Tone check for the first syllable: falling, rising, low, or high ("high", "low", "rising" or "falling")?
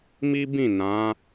high